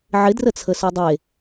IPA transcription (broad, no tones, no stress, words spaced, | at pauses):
ʕɪdrət͡sʰə sødˤe